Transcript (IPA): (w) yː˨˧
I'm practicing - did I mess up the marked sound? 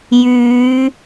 yes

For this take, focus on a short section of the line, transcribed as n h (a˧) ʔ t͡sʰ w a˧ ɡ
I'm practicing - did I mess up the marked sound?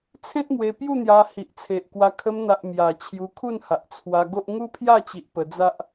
yes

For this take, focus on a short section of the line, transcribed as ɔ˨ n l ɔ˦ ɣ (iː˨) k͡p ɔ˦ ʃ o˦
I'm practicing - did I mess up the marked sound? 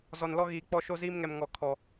no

